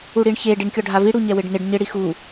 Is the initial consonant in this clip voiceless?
no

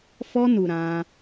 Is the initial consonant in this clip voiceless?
yes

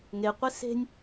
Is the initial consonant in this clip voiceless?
no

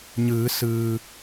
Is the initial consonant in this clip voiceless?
no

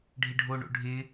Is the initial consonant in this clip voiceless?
no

